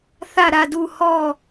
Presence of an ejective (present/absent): absent